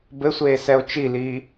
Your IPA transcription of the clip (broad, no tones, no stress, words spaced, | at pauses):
bɘsʷeːsɛo̯ t͡ʃiliː